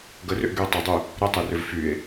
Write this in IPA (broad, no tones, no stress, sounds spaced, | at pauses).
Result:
ɡ ə r ʏ ʔ ɡ y o̯ tˤ ɐ dˤ y | ɾ ə tˤ e r ʏ v f y e̯